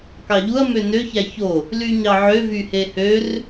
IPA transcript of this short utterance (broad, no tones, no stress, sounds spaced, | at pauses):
k ɑ ʎ u ɐ̯ m ø n ø ç æ ç o | l y ɲ ɑ ʕ ø v y h e h ø r